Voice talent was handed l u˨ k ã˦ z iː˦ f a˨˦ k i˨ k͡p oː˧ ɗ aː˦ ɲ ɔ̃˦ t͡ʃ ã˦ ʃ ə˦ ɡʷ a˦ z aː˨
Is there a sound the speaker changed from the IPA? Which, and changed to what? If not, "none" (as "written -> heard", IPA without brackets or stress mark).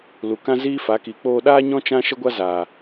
none